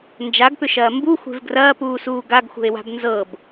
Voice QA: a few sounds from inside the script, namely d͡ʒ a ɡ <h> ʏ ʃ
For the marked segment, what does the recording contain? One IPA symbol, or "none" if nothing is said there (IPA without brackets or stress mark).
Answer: p